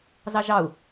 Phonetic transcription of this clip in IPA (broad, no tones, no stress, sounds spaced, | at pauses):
z ɑ ʒ ɑ u̯